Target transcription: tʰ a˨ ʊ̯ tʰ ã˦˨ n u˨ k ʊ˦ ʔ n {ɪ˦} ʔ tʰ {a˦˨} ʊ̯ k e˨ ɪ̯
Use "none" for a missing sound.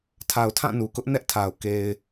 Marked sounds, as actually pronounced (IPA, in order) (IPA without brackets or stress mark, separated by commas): ɛ˦, a˨